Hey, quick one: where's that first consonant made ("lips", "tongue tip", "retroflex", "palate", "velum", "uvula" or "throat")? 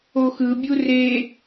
velum